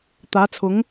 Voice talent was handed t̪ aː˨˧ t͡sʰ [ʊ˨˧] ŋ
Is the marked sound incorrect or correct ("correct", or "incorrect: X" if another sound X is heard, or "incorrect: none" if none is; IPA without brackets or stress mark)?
correct